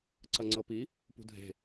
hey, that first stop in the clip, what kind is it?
click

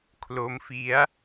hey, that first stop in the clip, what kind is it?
aspirated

